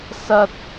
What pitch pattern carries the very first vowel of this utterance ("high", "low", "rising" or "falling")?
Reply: high